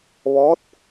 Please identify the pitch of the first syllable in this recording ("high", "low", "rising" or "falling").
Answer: rising